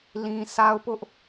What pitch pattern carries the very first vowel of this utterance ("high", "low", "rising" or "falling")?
high